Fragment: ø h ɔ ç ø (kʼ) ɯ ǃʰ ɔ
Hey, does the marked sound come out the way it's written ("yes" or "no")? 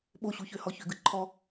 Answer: no